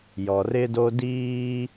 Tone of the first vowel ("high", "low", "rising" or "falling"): low